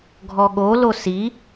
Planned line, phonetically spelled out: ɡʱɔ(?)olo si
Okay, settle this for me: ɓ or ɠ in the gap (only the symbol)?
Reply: ɠ